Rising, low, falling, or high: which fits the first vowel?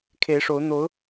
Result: rising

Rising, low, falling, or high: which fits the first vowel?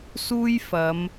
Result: high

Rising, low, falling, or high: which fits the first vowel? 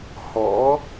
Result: rising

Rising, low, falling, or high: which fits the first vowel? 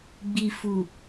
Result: low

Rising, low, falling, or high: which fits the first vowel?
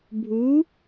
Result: rising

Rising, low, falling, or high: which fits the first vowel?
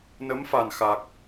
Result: rising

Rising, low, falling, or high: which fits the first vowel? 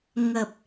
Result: low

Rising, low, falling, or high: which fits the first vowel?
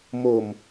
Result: low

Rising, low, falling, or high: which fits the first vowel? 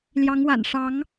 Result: rising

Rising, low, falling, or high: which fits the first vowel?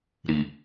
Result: low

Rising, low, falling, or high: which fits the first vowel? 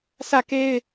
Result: falling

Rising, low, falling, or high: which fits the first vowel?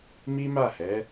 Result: high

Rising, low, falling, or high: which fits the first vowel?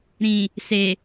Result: low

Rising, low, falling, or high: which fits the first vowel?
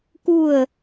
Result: falling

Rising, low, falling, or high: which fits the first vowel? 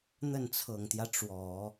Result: falling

